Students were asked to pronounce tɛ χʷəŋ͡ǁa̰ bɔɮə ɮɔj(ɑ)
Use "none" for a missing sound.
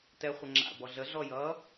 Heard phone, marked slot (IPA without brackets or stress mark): ʌ